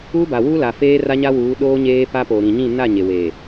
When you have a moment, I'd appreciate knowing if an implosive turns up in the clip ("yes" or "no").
yes